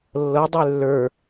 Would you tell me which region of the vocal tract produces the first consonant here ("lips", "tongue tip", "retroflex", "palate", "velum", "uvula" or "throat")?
tongue tip